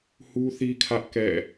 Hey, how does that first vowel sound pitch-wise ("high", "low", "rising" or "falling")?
high